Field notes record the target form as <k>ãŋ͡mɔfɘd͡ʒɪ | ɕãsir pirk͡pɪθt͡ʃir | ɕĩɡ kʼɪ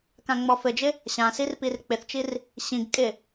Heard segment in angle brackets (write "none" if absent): k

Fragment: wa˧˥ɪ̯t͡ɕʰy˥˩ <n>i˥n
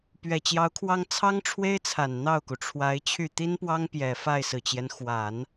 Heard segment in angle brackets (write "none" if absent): t̪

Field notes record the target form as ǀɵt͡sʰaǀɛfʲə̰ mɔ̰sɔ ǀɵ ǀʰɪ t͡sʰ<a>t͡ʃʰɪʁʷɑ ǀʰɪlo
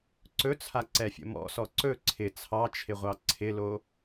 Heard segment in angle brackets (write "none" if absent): ɑ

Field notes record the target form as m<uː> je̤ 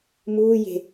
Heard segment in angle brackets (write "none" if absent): uː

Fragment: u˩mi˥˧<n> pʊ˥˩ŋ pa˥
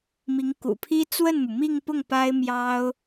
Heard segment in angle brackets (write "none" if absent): ŋ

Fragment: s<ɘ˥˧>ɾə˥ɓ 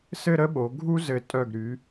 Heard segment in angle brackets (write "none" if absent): ɘ˥˧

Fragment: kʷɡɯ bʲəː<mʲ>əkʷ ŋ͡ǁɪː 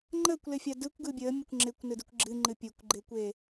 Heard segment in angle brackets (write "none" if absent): mʲ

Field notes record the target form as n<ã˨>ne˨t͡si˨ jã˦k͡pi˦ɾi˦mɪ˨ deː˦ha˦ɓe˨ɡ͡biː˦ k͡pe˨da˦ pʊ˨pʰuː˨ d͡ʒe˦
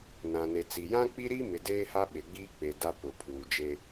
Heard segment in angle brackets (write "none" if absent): ã˨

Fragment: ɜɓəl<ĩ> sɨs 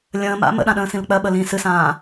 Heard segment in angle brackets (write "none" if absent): ĩ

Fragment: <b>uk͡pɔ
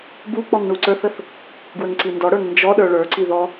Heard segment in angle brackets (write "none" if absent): b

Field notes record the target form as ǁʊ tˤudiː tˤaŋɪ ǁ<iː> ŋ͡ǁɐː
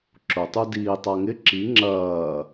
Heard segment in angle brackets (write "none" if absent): i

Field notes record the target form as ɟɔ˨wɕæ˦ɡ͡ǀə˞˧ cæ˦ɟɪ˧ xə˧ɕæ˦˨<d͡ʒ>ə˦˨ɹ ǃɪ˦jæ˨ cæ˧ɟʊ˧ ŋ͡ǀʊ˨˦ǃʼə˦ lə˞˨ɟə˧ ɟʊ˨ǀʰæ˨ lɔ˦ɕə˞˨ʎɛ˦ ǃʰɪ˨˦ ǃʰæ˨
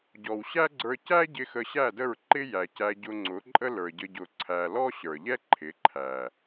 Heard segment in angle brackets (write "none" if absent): d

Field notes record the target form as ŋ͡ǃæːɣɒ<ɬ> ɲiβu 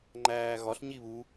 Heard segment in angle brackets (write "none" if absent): ɬ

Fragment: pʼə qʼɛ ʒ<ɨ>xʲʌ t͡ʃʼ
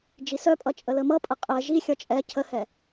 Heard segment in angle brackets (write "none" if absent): i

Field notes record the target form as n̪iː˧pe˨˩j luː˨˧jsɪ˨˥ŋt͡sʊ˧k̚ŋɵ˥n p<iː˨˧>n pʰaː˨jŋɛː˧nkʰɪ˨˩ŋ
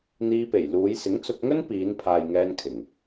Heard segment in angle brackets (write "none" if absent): iː˨˧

